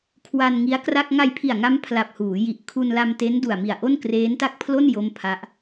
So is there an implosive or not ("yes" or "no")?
no